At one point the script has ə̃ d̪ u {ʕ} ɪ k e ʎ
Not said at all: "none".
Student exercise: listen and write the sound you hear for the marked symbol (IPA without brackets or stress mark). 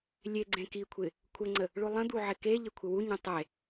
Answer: ʕ